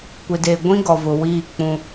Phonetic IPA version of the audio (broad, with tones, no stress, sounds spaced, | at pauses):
kʷ ɪ˨ d e˨ ɡʷ ĩ˦ ɡ ɔ˨ v ʊ˨ w iː˦˨ k͡p ũ˦